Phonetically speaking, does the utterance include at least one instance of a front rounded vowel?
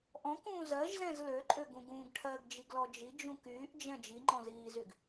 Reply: yes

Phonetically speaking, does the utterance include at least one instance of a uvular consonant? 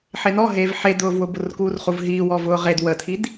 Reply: yes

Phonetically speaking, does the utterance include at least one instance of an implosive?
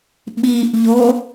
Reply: yes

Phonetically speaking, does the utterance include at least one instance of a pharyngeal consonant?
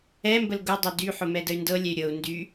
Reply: yes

